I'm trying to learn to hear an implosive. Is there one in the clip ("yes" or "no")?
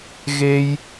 no